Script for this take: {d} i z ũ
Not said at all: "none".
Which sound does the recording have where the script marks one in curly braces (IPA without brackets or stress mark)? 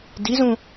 d